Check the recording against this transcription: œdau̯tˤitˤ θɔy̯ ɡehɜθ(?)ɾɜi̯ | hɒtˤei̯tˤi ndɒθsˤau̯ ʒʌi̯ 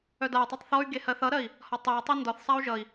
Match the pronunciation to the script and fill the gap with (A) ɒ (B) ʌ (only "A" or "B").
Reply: B